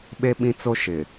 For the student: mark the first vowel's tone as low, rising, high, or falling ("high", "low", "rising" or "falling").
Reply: high